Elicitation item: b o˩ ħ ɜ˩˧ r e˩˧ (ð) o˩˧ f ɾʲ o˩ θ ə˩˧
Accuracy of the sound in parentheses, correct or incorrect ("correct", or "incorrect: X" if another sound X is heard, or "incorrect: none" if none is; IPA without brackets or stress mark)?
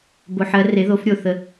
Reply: correct